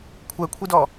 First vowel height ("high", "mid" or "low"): mid